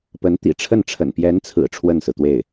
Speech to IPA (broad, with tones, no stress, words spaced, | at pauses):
pə˧˥nt̪ḭ˨˩ʈ͡ʂʰə˥˩nʈ͡ʂʰə̰˨˩n pjɛ˧˥nt͡sʰɹ̩˨˩ ʈ͡ʂʰwə˥˩nsɹ̩˩t̪we˥˩ɪ̯